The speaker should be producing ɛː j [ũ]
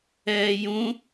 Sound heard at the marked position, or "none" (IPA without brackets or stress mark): ũ